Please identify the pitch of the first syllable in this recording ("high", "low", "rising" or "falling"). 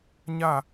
falling